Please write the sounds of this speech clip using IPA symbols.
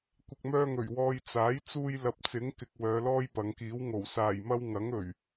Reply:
kʷɪ˨k̚mœː˧ŋɵ˨˩ɥ wɔː˧j t͡saː˨˥jt͡suː˧j lɐ˨p̚t͡sɪ˨˥ŋ kɪ˧k̚ wœː˨˧lɔː˥jpɐ˨˧ŋkiː˨˥w ŋo˨˩w saː˨˩jmɐ˧w ŋɐ˨˥ŋɵ˨˩ɥ

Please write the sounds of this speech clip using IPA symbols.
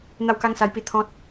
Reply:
n̪a˥˧wka˦ŋsa˧jpi˧ t̪ʰɔ̃˦t̚

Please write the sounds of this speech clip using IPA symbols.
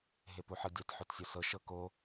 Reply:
ɦepuħɤdʲat ħotsʲosɤ ʃɤko

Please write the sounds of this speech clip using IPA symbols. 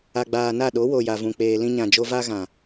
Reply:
a˨ɡ͡baː˨na˦˨ɗo˨˦ wo˨ja˨vũ˨k͡peː˨ lĩ˧ɲã˨d͡ʒo˧ va˧ɣã˨

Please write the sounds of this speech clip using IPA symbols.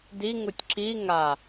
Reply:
diŋutʲ ǁi ŋa

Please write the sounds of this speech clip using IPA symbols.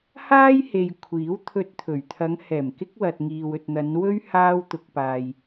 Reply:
haː˥jhe˨j kʷʰiː˨˥wt̪ʰɵ˧t̚t̪ʰɵ˨˩ɥ t̪ʰɐ˨˧ŋhɛː˨˩m kɪ˥k̚wɐ˨t̚ŋiː˨w ɵ˨t̚n̪ɐ˨˧n wɵ˥ɥ haː˧wt̪ʊ˨k̚ paː˨j

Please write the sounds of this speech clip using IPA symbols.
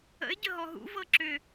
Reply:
ə̰ɪ̯ ɟəɦɔɦṵ vɤǁʏ

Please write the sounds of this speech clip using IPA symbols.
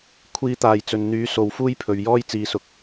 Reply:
kʷʰiː˥t̪aː˧jt͡sɵ˧n n̪yː˨˥so˨w fuː˥jpʰɵ˨ɥjɔː˥j t͡siː˨˧sʊ˨k̚

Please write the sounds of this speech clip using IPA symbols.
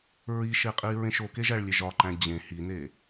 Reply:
ɹiʃeqʼi ɹẽʃokeʒæɭ lʲeʒɒǃæ̃ d͡ʑẽ hine

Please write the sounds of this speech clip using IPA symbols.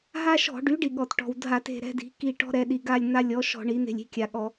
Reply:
ɦa˦ʃɔ̤˧˩˧ɖy˩˥ɖi˩ ɠɔ˩tʈɔ̤˩wdʱa˧˩˧t e̤˦˨ɾɛ̤˦di̤˩˥ki˦˨ ʈɔ̤˦ɾɛ˩˧ ɗi˩ɡa˦˨lʲn̪a˦ lʲɔ˩˥ʃɔ̤˧˩˧ ɳi˩˥n̪e̤˦˨lʲ i̤˦˨kʲa˩ɠɔ˧˩˧

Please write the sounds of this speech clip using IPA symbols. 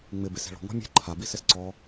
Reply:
ŋ͡mɪ bese̤ɭɔ̤ ŋɔ̤mʲe̤ ǃʰa bisɪsǀɔ

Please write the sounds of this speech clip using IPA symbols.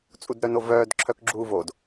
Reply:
t͡sʼudɾœnovœːd ǁʰœkɡ͡ǁuːvod

